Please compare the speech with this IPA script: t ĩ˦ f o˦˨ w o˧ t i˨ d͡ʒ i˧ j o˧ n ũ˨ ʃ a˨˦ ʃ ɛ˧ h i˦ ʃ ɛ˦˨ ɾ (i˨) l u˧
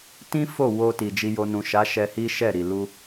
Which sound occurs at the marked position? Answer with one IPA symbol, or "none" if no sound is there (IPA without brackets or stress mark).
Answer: i˨